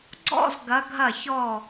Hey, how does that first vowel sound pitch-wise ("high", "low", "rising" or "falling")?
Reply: falling